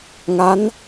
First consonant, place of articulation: velar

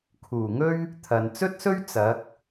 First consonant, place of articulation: velar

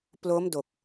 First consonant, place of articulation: labial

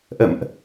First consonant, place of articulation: glottal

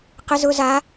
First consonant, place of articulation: uvular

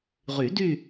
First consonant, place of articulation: uvular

